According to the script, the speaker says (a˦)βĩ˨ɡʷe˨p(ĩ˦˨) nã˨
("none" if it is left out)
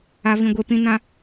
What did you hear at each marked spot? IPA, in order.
a˨, ĩ˨

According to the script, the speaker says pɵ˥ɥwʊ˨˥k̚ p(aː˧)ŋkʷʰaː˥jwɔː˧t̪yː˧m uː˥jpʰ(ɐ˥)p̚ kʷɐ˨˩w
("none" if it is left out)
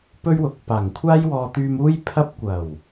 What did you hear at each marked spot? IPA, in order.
aː˨˩, ɐ˥

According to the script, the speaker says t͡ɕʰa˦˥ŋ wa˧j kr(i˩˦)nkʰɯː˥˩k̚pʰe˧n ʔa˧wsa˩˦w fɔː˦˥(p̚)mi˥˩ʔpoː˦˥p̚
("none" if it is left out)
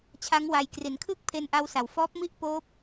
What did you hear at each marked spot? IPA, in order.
i˩˦, p̚

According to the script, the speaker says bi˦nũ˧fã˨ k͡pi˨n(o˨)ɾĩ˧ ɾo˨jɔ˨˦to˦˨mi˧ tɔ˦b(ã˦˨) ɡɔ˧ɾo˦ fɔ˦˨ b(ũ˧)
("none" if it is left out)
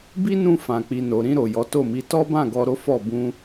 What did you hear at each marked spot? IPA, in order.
o˨, ã˦˨, ũ˧

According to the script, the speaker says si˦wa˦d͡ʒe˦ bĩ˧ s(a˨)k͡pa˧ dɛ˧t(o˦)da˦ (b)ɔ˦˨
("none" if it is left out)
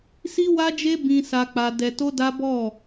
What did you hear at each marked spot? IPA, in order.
a˧, o˦, b

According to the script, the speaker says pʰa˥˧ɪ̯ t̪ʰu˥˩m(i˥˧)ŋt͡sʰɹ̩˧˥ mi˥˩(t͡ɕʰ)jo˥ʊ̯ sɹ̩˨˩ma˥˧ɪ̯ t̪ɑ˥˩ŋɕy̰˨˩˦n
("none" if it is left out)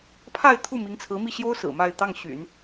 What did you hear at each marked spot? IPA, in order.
i˧˥, ɕ

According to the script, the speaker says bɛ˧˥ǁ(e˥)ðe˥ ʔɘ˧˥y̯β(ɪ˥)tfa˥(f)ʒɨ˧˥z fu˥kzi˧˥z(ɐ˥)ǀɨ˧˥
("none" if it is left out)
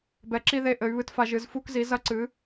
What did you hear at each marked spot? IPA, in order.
i˥, ɨ˥, none, ɐ˥

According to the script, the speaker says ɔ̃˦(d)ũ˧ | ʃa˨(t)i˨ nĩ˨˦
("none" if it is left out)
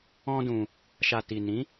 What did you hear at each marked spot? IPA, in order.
d, t

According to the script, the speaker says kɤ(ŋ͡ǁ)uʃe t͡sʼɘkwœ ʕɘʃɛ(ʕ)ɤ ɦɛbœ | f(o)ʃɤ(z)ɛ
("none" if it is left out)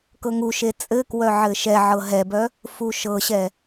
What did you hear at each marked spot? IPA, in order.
ŋ, ʕ, u, ɕ

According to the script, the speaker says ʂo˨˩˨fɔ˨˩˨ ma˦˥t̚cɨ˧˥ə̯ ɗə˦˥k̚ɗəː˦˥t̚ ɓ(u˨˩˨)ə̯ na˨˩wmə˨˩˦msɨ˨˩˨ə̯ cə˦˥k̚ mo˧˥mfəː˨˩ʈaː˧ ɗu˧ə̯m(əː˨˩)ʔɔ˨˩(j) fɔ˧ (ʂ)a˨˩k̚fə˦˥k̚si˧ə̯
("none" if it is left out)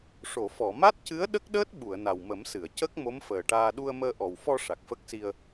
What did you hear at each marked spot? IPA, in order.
u˨˩˨, əː˧, w, ʂ

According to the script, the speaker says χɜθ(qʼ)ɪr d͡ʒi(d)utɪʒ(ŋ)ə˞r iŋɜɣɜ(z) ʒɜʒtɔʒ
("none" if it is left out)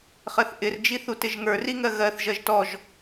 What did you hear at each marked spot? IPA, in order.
ʔ, θ, ŋ, θ

